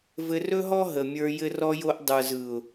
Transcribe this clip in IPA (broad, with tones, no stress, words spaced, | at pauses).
vɘ˧rɵ˦ɦɔ˦ ɦə˨mʲə˞˧ jɘ˧rɔ˧jo˧ʔ dˤə˞˨z ɯ˨ʊ̯